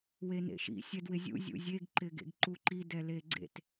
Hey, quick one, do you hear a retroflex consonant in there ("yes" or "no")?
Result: no